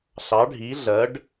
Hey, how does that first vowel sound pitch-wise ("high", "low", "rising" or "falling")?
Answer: rising